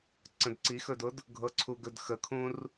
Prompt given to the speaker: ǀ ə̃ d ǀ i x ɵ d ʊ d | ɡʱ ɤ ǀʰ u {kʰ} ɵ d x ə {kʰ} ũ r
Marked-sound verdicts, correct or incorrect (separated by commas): incorrect, correct